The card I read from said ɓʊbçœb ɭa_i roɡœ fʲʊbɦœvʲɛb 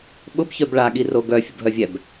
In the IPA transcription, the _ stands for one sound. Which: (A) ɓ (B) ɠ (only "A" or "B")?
B